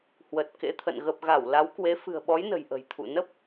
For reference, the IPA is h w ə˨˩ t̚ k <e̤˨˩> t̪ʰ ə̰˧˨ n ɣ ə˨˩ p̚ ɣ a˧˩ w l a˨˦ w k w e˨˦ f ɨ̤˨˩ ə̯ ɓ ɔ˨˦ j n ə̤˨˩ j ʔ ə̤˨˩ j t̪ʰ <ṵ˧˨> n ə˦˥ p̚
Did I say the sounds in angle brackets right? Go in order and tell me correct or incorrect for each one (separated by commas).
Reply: incorrect, correct